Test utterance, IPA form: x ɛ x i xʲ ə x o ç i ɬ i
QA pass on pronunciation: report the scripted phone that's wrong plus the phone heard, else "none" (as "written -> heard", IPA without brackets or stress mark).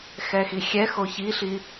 ə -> ɛ